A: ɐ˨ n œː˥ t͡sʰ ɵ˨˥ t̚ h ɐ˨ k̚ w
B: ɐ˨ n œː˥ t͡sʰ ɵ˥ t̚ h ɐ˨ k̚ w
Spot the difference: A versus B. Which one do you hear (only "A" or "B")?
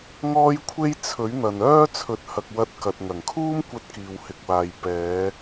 A